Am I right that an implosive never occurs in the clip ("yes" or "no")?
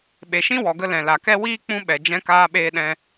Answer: no